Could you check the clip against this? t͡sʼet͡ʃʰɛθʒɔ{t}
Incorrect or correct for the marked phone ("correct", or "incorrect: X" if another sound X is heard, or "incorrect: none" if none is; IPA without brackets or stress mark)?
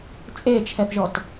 correct